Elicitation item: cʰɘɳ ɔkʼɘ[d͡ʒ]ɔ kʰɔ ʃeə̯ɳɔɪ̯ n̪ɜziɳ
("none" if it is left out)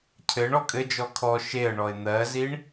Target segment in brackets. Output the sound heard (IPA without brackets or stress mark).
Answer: d͡ʒ